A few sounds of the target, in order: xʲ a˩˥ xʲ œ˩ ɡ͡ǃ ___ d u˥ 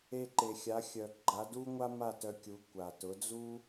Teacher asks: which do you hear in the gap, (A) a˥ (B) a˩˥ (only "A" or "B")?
B